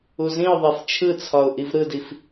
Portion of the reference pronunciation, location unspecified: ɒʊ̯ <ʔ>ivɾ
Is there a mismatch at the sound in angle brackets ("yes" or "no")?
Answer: no